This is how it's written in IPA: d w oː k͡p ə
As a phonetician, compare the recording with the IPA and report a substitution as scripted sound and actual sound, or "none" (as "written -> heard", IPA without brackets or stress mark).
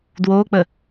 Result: none